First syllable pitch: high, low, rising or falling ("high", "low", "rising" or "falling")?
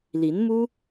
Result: rising